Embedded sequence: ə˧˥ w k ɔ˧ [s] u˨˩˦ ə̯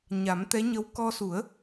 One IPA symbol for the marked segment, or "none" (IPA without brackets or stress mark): s